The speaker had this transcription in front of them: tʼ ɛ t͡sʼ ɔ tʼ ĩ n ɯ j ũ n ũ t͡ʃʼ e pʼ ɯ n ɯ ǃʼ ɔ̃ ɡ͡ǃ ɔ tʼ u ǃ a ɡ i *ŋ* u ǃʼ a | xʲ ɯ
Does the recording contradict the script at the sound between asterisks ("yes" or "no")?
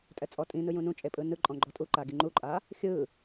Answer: yes